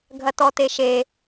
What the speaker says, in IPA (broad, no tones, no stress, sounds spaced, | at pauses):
ɡʱ ɐ t ɔ t e ʃ e